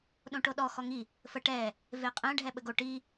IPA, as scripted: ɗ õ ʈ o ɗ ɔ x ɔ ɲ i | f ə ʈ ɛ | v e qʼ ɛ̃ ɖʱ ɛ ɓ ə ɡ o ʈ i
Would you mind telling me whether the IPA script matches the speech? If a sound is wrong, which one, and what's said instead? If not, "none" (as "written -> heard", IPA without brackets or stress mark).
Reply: ɲ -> ŋ